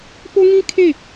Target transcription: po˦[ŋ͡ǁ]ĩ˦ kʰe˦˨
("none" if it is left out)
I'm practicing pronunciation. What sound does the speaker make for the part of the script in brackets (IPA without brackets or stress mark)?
ŋ